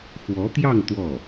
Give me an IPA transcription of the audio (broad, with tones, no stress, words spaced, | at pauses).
xwɔ˧˥t̪jɑ˥˧ŋ t̪wɔ˥˩